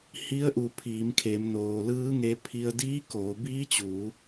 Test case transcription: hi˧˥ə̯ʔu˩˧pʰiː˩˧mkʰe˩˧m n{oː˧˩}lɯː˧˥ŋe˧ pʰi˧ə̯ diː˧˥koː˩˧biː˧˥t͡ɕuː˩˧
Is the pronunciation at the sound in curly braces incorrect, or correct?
incorrect